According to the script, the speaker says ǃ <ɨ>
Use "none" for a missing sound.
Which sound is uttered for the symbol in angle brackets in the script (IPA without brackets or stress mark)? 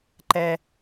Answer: ɛ